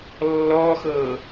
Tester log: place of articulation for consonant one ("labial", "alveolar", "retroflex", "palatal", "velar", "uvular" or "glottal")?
alveolar